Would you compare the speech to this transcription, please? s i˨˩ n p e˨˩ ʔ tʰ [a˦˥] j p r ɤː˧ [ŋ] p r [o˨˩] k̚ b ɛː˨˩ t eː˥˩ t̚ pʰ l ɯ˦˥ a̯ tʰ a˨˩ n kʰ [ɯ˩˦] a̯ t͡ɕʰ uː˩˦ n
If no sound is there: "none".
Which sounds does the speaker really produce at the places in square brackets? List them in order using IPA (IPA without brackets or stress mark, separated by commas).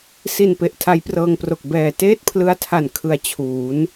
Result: a˦˥, ŋ, o˨˩, ɯ˩˦